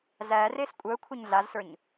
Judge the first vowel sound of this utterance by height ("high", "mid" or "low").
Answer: low